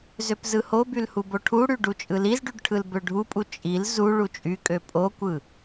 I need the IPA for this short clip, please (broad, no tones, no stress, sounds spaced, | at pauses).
z ø p z ɯ h o b y l h u b o ʈʰ u ɽ y ɖ u t͡ʃʼ ɯ l i z ɖ y ɖ ʈʰ ɯ l b ø ɖʱ u pʼ u t͡ʃʼ i l z u ɭ u t͡ʃʼ y kʼ ø pʼ o kʷ ɯ